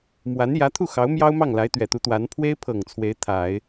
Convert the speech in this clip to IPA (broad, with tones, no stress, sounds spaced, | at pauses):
m w a˧˥ n j ä˧˥ t̪ʰ u˥˩ x ɑ˧˥ ʊ̯ m j ɑ˥ ʊ̯ m ɑ˥˩ ŋ l a˧˥ ɪ̯ t̪ ɥ ɛ˨˩ t̪ u˧˥ t̪ w a˧˥ n pʰ w e˥ ɪ̯ pʰ ɤ˨˩ ŋ t͡sʰ w e˧˥ ɪ̯ t̪ʰ a˨˩˦ ɪ̯